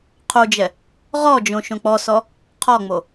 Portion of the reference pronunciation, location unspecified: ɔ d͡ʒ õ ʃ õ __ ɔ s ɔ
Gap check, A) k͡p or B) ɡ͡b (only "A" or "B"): A